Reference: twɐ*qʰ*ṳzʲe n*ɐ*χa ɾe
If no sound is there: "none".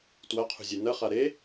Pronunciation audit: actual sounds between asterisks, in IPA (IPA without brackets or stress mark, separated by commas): qʰ, ɐ